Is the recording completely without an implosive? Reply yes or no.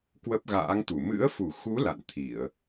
yes